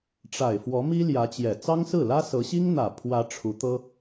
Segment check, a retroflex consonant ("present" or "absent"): present